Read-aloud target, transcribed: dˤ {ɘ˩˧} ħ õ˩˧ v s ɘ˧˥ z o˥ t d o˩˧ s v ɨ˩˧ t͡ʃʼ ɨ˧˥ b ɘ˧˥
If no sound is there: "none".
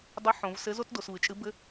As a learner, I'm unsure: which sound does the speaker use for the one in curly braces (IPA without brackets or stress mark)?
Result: ɘ˧˥